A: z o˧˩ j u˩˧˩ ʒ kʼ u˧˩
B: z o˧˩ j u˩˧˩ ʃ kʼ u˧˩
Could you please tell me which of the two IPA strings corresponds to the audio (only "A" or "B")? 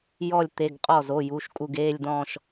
B